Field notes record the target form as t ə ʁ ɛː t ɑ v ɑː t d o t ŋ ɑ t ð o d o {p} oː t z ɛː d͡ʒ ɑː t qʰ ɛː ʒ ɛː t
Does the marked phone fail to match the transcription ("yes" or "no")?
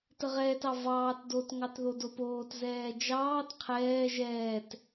no